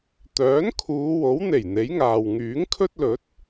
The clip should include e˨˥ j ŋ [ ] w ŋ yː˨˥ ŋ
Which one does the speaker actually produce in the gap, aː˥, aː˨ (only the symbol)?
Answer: aː˨